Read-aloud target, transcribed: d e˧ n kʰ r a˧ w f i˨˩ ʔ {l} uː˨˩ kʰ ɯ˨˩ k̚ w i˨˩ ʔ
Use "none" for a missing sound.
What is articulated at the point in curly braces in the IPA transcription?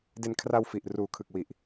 r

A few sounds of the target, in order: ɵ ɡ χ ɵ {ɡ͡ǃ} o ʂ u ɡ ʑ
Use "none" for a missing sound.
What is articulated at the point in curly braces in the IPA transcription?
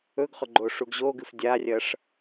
ɡ͡ǃ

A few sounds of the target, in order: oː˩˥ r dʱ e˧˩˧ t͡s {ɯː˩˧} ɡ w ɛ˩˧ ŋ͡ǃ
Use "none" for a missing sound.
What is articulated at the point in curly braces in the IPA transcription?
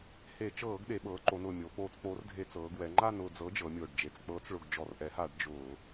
ɤː˩˧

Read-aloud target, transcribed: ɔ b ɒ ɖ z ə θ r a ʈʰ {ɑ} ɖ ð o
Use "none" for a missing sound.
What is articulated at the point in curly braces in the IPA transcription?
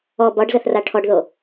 ɔ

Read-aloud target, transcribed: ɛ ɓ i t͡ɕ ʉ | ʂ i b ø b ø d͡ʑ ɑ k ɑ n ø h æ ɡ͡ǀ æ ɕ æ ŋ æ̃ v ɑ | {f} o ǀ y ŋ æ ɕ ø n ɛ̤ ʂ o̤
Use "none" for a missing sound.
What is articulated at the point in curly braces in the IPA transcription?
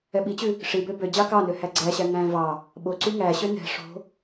ɓ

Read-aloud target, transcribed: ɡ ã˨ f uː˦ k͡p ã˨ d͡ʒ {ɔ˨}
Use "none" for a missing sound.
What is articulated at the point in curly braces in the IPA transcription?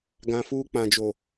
o˨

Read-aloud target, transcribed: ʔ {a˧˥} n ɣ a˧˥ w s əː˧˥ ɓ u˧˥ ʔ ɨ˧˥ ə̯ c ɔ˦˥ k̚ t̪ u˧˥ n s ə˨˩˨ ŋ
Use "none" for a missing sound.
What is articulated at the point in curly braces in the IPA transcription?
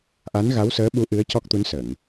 a˧˥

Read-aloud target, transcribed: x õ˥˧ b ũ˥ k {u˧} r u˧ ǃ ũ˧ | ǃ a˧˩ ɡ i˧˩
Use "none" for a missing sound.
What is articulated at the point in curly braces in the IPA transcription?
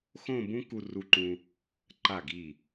u˧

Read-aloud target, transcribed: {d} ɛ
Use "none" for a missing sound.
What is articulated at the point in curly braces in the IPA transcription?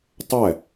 tˤ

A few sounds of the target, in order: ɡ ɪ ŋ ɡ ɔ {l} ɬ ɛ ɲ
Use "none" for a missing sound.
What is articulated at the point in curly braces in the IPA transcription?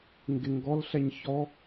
l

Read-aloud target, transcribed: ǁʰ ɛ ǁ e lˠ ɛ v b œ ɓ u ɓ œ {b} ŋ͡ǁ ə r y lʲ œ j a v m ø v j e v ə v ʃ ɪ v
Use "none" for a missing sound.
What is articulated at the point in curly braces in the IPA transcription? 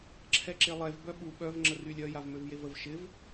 v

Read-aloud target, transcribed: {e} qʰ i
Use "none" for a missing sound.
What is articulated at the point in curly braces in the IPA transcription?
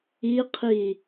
i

